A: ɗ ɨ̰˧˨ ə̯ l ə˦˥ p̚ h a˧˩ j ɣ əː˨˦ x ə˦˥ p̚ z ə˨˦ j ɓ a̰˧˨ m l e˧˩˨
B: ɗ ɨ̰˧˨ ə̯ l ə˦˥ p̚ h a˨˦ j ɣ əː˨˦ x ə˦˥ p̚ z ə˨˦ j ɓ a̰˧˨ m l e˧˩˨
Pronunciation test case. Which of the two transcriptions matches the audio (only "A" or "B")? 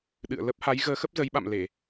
B